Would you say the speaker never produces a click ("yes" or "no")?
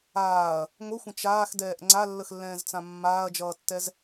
no